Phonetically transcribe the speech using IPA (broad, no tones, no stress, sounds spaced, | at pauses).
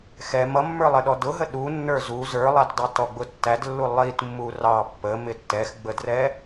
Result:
x ɛ m ʌ mː ə˞ lˠ ɪ ɗ ɔ d ʊ ɦ ə ɗ u nː ə˞ z u z ə˞ lˠ æ t dˤ i t ɔ ɡ͡b ʊ tː æ d lː u lˠ i t mː u r ɑ pː ə m ɪ tː ɛ x ɡ͡b ə d r ɛ